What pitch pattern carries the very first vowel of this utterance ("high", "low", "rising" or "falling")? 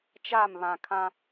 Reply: falling